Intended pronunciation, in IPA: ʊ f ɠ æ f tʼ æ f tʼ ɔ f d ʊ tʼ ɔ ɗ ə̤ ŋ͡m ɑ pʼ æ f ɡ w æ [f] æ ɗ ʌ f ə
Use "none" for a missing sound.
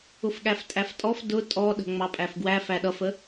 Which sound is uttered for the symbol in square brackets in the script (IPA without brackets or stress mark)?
f